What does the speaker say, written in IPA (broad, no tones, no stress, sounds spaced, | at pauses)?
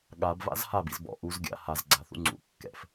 ɠ a b v a̰ z h a b ḭ z b ɔ̰ ʔ u z ɡʲ a̰ h a z ɡ͡ǀ a θ ṵ ŋ͡ǀ ṵ kː ɛ̰ f